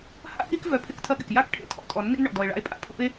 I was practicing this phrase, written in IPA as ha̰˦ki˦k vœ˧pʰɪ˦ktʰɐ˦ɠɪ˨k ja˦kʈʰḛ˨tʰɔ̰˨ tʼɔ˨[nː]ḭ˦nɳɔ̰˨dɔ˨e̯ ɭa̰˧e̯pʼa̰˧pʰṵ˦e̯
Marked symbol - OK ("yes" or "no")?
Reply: yes